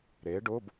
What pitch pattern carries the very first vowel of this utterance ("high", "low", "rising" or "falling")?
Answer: rising